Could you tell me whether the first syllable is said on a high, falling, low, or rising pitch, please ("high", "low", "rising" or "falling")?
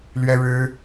high